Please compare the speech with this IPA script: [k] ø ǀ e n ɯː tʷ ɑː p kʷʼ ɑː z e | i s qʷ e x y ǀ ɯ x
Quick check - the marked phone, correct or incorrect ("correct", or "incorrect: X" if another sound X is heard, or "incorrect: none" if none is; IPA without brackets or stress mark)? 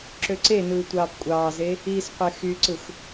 incorrect: ǁ